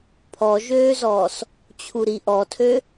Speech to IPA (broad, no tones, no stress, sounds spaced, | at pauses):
pʰ ɔ ʒ øː z ɔː s | t͡ɕʰ u ɾ i ʔ ɔ tʰ ø